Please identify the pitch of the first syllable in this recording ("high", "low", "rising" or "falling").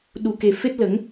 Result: low